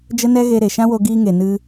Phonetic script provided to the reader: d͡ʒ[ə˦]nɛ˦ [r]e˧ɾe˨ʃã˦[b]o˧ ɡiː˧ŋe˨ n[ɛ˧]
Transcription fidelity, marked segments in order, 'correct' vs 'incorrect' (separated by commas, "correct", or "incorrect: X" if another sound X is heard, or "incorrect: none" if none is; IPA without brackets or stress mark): correct, incorrect: ɣ, incorrect: w, incorrect: ɨ˧